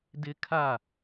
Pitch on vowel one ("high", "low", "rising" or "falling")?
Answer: high